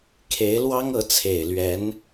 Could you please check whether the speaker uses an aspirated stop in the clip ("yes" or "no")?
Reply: yes